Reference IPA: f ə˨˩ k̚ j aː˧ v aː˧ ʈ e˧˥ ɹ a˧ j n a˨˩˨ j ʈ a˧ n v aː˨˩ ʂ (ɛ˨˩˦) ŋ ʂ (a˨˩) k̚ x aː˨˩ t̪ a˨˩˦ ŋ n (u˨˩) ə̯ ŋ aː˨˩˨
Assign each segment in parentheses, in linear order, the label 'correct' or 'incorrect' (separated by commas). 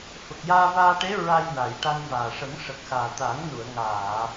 incorrect, incorrect, incorrect